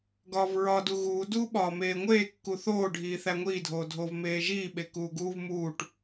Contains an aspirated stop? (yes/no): no